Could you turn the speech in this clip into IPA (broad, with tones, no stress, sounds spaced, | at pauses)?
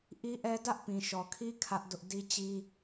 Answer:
ʔ i˦ ʔ ɛ˦ d ä˦ ʔ p ĩ˨ ʃ ɔ˨ kʰ i˦ kʰ ä˦ ʔ d ʊ˦ ʔ d i˦ t͡ɕ i˦